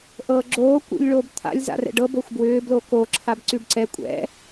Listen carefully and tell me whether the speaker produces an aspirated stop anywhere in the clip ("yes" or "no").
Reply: yes